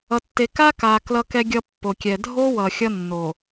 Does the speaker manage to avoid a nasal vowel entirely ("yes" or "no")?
yes